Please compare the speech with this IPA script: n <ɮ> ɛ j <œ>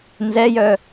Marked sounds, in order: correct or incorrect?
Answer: incorrect, correct

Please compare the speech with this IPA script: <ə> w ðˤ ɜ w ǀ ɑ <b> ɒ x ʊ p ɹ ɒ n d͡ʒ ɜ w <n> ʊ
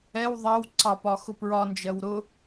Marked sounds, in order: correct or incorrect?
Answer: incorrect, incorrect, incorrect

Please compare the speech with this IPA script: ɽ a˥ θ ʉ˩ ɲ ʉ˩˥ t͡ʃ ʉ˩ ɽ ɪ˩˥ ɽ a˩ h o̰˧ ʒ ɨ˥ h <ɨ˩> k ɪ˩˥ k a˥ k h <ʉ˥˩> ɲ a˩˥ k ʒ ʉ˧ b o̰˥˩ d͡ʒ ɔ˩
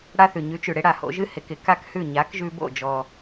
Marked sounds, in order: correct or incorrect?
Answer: incorrect, correct

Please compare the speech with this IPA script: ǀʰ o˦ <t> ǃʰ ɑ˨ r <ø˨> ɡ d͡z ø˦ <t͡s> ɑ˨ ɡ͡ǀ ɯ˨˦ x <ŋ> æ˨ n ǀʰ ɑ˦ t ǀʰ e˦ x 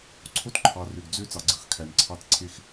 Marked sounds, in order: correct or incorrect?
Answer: correct, correct, correct, incorrect

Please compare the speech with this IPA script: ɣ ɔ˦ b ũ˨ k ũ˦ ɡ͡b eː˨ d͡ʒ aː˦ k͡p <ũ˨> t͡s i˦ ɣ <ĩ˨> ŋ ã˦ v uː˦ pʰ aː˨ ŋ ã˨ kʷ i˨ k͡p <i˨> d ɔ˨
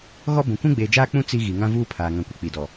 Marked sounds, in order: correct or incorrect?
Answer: incorrect, incorrect, correct

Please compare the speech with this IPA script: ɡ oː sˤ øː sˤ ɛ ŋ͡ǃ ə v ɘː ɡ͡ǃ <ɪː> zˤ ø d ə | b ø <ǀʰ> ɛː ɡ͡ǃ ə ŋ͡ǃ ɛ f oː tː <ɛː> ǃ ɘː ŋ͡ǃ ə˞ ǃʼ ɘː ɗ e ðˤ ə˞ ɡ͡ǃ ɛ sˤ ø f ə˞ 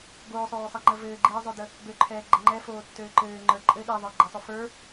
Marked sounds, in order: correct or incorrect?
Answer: incorrect, incorrect, incorrect

